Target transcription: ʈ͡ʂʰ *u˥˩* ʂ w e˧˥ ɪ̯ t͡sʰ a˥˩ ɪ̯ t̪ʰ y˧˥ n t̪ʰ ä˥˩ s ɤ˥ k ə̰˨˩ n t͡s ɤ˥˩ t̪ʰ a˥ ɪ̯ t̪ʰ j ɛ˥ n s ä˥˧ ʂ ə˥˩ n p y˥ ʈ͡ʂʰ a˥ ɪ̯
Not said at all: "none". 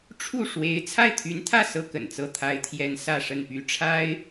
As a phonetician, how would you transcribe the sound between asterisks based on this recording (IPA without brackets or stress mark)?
u˥˩